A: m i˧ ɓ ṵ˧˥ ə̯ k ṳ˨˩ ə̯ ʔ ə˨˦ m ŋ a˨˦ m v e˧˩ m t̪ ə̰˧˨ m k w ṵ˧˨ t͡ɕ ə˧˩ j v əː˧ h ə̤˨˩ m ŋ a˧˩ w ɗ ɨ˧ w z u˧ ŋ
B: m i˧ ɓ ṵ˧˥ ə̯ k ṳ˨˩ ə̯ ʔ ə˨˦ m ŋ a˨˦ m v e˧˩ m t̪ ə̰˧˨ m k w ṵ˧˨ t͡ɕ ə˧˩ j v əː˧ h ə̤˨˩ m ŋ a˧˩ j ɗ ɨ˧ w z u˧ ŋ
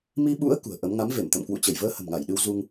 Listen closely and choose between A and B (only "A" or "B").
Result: B